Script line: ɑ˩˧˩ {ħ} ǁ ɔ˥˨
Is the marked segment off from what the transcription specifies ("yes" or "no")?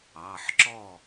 no